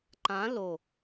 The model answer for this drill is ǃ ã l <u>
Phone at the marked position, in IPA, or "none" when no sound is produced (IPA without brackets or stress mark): o